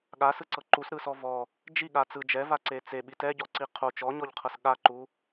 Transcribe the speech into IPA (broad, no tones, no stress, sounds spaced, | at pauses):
ɠ a s ɯ ǀ ɤ ǃ u s ɾ ɯ s ɔ v ɔ | d͡ʒ i ɠ a t͡s ɯ d͡ʒ ɛ v a ǀ e t͡s e ɓ i t ɛ ɟ ɔ ǀ i qʰ o t͡ʃ ɔ ɲ ɔ ʎ qʰ ɤ s ɠ a ǃ u